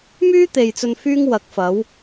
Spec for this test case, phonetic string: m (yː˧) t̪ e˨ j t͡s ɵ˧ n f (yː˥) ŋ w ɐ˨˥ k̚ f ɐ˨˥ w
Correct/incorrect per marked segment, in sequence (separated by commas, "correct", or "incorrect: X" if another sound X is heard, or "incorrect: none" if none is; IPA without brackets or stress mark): incorrect: yː˥, correct